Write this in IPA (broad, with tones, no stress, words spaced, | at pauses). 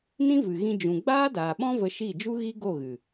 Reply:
nĩ˦vɨ˨ ɣĩ˧d͡ʒũ˨ ɡ͡baː˦daː˨ɓɔ̃˦ və˧ʃi˦˨d͡ʒu˦ ɣi˦ɡo˦˨ɣɨ˨